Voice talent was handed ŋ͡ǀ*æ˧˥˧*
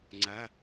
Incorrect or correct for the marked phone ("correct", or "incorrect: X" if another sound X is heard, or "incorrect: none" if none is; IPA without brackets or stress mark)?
correct